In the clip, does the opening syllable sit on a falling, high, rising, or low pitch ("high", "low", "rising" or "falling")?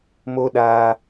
high